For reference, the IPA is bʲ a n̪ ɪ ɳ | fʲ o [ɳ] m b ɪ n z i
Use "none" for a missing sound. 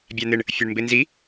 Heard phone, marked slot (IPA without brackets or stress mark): ɳ